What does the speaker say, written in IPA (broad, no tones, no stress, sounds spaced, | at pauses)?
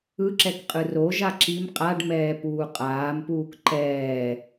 ɯ ǁ ɛ k qʼ ɯ r o ʒ a ǁ i m qʼ a ɖ m ɛː p uː qʼ aː m p uː k ǃ ɛː